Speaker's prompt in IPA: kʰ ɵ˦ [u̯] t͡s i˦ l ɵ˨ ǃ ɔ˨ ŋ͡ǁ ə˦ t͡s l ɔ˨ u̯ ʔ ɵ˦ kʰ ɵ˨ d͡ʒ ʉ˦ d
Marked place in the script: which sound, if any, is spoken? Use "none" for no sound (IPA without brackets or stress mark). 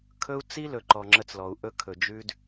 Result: u̯